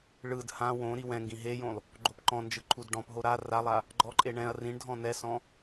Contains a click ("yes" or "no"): yes